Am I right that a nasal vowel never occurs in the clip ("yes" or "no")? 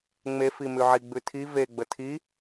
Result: yes